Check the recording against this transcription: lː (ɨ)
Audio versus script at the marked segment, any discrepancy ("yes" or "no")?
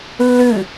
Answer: no